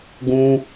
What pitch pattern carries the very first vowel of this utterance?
high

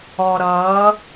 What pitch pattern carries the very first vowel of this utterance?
low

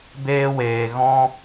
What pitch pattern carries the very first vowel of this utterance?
high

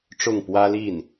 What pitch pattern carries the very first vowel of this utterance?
falling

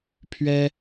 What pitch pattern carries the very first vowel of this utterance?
high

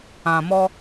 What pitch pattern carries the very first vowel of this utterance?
low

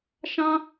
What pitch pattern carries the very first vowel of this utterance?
high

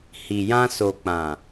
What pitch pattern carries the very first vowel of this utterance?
low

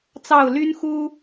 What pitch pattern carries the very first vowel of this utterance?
falling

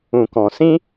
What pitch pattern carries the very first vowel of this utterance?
low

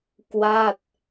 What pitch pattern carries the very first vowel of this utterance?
falling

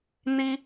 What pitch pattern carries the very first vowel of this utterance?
high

